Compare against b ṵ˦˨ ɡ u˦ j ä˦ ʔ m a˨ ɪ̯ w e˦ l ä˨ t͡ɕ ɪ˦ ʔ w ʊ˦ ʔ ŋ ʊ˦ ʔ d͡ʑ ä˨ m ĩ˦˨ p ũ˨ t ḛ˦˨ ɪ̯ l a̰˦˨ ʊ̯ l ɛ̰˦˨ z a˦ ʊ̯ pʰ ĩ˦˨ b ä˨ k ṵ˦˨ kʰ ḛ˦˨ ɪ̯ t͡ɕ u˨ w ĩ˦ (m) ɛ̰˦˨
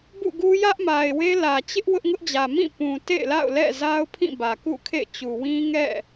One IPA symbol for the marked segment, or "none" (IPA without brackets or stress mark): ŋ